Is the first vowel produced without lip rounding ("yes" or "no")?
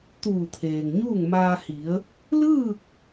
no